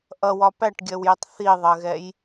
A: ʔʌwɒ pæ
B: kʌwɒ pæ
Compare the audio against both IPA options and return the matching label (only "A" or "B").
A